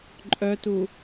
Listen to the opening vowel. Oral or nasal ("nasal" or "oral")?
oral